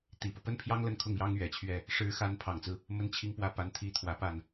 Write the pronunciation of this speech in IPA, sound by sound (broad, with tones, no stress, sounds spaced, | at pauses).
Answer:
t̪ i˨˩ p ɤ˦ p ə˥ n pʰ j ɑ˥ ŋ l ə˥˧ n kʰ ʊ˥˩ ŋ j ɑ˥ ŋ ɥ ɛ˨˩ t͡ɕʰ ɥ ɛ˥˩ | ʂ ɻ̩˧˥ x a˧˥ n pʰ ɑ˨˩ ŋ t͡s ɹ̩˦ | m ə˥ n t͡ɕʰ i˥˧ ŋ p w ä˥˩ p a˧˥ n t̪ʰ i˧˥ t̪ʰ w ä˨˩ p a˥˩ n